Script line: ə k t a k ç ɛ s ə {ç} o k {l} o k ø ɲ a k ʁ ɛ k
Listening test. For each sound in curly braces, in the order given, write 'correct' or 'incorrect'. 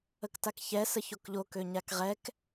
correct, incorrect: ʎ

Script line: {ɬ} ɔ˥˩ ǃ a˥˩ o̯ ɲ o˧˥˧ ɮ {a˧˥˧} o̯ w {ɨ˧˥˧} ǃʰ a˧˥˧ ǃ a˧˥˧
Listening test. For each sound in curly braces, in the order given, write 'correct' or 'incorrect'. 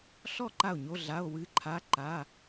correct, correct, correct

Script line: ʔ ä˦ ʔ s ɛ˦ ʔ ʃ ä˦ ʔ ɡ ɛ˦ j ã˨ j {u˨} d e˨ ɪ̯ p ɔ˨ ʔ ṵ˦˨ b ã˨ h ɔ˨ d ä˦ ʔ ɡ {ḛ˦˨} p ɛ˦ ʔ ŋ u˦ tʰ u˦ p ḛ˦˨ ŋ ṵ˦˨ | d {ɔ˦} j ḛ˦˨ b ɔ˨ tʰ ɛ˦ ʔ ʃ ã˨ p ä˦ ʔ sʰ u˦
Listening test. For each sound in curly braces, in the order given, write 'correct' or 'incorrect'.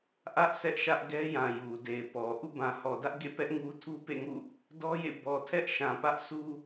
correct, correct, correct

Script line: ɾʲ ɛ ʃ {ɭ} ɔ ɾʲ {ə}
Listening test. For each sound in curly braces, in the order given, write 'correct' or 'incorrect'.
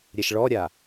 correct, incorrect: a

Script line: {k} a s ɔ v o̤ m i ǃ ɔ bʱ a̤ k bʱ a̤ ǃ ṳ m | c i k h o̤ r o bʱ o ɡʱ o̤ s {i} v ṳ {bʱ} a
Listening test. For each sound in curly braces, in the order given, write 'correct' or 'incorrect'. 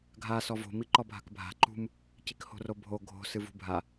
incorrect: ɡʱ, incorrect: ɨ, correct

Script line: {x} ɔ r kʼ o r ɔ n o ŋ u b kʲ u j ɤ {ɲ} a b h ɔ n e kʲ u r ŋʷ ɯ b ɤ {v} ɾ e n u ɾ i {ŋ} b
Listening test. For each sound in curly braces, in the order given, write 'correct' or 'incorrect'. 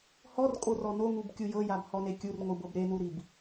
incorrect: h, incorrect: j, incorrect: b, incorrect: none

